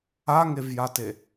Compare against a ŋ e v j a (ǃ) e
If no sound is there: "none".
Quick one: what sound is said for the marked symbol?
t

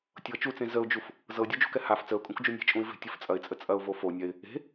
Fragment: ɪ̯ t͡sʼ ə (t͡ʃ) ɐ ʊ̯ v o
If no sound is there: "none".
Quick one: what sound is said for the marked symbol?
t͡sʼ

